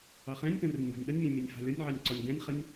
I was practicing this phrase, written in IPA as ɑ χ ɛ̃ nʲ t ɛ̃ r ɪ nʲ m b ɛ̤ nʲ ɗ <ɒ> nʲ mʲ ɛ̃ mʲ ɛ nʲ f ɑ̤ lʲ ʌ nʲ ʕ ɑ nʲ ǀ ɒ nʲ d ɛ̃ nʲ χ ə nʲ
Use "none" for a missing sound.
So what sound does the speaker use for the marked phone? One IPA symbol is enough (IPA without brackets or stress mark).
ʌ